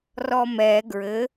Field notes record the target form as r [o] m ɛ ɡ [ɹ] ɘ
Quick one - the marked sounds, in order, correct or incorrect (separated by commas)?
incorrect, correct